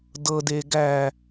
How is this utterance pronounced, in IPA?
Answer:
dɤdeː ɡæ

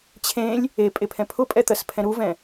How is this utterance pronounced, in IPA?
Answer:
t͡ɕʰẽlʲ | e pʼepʰɛ̃pʰʊpʼɛ t̪ɜspʰɛ̃ɾuvɛ̃

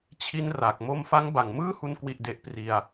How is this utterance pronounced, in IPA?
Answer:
t͡ɕʰi˦˥n ra˨˩k̚ mo˧mfa˦˥ŋba˨˩ŋ mɯː˥˩hu˧n kwi˥˩ʔde˦˥ʔ pri˧a̯

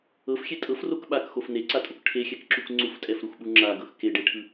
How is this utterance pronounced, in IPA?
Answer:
ɤfxʲe tʼɤfrok ɓakxof neǀatʼok ʈʰexʲɛkǁuk ŋ͡ǀuftʼɛfɾuxɓu ŋ͡ǁaɡɤx keɖeʈʰɯ

